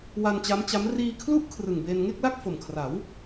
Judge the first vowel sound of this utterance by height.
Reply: low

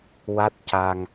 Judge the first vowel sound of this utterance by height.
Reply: low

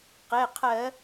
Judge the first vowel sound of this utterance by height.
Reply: mid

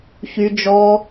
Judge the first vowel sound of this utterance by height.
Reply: high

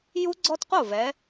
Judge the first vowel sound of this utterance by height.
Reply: high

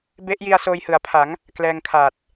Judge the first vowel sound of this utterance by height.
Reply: mid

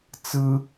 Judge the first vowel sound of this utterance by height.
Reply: high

